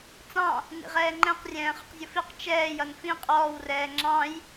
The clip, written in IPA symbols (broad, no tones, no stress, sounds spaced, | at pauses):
t͡s ɑ̃ | n ḭ ʁ ɛː ŋ͡ǃ ɛ̃ q rʲ ɛ̃ː χ ʊ q zʲ ʊ f i q t͡ʃ ɛː j ʌ n f ĩ qʼ ɔː w r ɛː ŋ͡ǁ ɑ̃ j